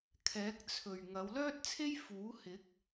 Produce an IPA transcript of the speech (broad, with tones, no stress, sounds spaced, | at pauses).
kʰ ɛː˨˥ k̚ t͡sʰ ɵ˨ ɥ ŋ ɐ˨˧ w l œː˥ t̚ t͡sʰ e˥ j f uː˨˥ h ɪ˨˥ k̚